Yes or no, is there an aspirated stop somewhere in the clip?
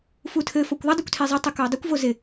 yes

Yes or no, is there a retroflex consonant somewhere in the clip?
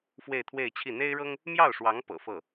yes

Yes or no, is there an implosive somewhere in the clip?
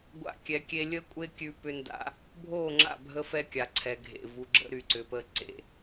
no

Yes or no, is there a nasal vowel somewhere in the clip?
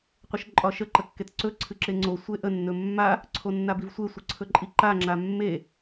no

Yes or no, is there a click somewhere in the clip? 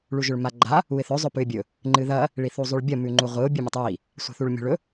yes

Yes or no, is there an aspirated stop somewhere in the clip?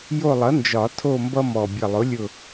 yes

